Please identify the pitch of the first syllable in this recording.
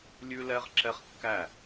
high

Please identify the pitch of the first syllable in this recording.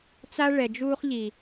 high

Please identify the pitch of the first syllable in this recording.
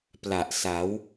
low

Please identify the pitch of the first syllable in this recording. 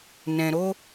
low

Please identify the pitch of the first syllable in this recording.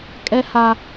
high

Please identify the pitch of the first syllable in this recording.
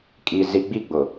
low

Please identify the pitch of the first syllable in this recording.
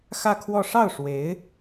falling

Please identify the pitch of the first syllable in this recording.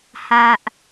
low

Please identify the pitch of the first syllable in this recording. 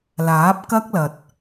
rising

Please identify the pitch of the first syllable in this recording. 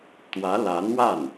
rising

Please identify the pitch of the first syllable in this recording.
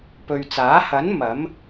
low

